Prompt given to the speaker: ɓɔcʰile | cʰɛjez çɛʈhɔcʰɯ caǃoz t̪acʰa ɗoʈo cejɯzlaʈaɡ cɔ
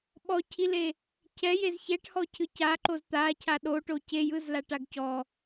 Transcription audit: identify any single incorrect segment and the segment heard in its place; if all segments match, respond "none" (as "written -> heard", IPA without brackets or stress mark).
none